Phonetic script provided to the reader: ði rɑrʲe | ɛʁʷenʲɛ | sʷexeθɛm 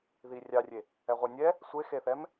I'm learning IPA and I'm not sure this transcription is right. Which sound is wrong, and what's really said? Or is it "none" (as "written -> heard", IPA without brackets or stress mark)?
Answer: r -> rʲ